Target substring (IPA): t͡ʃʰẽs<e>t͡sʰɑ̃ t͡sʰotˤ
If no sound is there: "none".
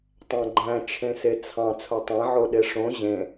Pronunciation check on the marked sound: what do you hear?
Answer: e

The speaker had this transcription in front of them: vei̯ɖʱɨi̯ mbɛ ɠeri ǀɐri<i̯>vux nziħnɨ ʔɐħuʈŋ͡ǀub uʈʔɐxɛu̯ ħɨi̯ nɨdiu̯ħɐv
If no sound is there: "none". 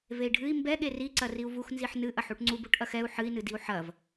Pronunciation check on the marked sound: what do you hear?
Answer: u̯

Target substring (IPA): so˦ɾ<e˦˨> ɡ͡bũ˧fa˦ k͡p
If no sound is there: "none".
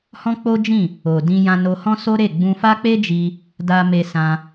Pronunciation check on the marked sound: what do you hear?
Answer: e˦˨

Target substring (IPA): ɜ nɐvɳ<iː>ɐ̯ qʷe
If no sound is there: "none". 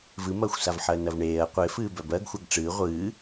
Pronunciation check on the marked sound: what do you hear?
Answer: eː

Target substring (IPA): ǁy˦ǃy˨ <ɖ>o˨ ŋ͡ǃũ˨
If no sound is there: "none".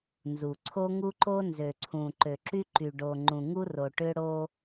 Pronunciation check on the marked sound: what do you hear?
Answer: ɖ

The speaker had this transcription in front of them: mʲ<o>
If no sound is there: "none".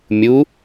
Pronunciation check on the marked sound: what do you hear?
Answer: u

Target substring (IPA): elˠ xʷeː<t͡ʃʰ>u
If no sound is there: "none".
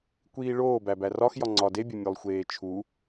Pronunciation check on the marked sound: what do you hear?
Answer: t͡ʃʰ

